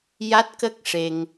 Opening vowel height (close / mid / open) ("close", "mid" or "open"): open